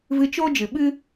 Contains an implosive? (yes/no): yes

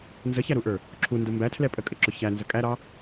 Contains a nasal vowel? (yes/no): no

